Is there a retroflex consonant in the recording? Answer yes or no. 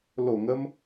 no